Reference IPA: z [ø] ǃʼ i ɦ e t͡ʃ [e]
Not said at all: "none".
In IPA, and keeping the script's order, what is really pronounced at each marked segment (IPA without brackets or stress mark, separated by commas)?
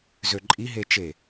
ø, e